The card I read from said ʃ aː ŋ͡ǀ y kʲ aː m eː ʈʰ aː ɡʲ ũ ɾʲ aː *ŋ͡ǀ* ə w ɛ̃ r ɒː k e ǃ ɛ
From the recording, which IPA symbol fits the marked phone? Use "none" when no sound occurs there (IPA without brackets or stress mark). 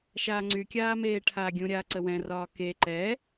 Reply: ǀ